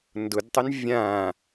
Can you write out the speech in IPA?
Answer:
ndʊdtˤɪn vʲãː

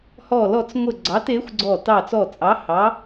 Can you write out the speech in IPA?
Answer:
hɔ˧˩lɔ˧˩t͡sŋʷɘ˧˩ ɡ͡ǀɑ˨˦te˨˦xʷɡ͡ǀɔ˧˩ tɑ˧˩t͡sɔ˧˩ t͡sʼɑ˨˦ hɑ˨˦

